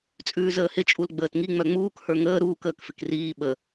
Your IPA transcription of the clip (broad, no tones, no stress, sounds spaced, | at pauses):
t͡sʼ ʉː z əː h ɪ t͡ʃʼ u l ɡ͡b əː t ŋ i ŋ͡m œ ŋ͡m uː k h ə˞ ŋ əː ɾ uː k əː k f ɪ k r iː ɓ ə